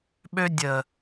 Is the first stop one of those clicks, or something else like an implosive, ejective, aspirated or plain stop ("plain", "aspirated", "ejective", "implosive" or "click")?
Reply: implosive